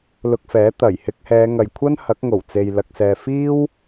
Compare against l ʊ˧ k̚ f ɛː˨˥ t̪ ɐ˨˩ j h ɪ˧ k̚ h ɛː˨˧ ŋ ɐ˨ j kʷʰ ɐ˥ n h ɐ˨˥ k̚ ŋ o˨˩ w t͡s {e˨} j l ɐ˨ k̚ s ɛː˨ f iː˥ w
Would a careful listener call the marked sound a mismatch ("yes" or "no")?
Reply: no